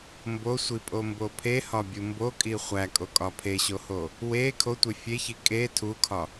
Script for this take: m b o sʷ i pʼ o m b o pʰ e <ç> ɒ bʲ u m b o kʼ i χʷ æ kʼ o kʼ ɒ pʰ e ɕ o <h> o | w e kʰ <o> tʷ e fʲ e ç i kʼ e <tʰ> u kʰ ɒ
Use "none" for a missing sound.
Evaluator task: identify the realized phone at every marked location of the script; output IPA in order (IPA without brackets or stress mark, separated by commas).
h, h, o, tʰ